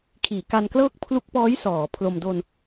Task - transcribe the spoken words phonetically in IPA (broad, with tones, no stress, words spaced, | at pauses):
kʰiː˩˦ka˧nklɤː˥˩k̚ pʰlu˦˥k̚pɔː˦˥j sɔː˩˦pʰlo˧m do˧n